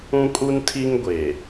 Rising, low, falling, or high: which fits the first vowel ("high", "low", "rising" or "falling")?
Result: high